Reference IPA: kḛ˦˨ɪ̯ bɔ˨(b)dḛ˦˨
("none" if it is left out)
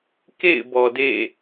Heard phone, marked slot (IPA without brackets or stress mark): none